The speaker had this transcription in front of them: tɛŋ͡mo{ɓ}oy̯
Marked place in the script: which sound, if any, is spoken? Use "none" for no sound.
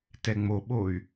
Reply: ɓ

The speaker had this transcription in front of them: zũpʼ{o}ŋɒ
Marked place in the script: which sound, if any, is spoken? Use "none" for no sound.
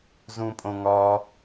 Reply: õ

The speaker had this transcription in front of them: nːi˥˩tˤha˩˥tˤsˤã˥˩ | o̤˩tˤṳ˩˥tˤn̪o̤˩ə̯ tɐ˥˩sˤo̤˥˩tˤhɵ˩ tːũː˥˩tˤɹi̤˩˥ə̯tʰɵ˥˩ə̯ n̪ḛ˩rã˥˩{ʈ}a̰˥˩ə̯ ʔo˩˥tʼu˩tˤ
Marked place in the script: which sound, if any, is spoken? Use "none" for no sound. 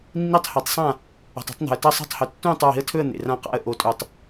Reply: q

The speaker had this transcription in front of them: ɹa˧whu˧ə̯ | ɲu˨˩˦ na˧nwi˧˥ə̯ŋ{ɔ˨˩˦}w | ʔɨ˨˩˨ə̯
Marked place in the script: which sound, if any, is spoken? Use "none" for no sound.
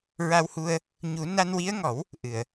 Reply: ɔ˨˩˦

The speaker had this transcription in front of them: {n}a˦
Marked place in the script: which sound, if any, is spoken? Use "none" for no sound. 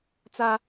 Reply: t͡s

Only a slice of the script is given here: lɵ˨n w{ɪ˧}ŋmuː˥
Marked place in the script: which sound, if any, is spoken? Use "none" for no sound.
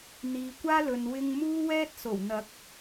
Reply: ɪ˧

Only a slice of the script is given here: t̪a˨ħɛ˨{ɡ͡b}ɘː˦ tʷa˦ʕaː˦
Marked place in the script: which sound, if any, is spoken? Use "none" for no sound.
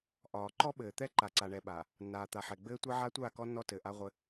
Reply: ɡ͡b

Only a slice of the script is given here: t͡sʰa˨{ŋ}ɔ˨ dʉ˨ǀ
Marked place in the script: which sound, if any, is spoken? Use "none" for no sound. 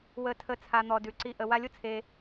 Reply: n̪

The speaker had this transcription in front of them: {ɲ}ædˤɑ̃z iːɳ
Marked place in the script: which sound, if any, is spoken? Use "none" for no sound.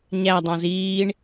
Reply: ɲ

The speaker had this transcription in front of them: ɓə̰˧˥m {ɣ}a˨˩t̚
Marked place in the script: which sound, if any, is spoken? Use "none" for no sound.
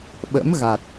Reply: ɣ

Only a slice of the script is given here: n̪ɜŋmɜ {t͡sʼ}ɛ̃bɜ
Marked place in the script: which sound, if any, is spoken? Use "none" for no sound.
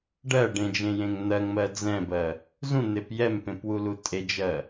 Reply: d͡z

